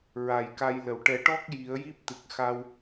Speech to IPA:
ɹa˨˩jka˧jlə˨˩w ʈɛ˨˩˦ʈɔ˦˥k̚ ji˨˩˦ə̯ji˦˥p̚ t̪ɨ˨˩k̚xa˧w

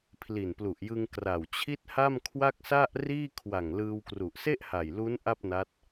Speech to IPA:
pʰli˨˩nplu˨˩ʔjɯ˧ŋ kra˨˩wt͡ɕʰi˥˩t̚ha˥˩m kʰwa˥˩k̚sa˥˩ʔriː˥˩ kʰwa˨˩ŋlɯː˧wkru˨˩ʔ se˥˩ʔha˨˩jlu˦˥n ʔa˥˩p̚na˦˥t̚

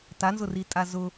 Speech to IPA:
tanzʊritʼa zʊ

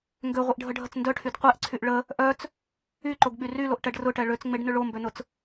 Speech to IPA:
ŋɡøʁʷiʔɖʱəɖʱət͡s ndœʈʰyd qʷɛʔǀʰyʔ ɭə | ʔœt͡s | yǃoɡɓy ryloʔʈɛɖ rʊʈɛ ɭøt͡sŋ͡meɖnʏ ɭombønʊt͡s

